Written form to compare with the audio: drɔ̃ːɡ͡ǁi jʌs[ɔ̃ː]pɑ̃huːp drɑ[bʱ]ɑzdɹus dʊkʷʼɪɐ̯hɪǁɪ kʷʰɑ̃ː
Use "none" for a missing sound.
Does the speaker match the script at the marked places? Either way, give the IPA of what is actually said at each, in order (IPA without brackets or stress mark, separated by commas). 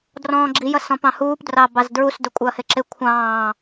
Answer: ɔ̃, b